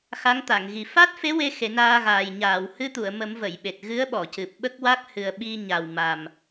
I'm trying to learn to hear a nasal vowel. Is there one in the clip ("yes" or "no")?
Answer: no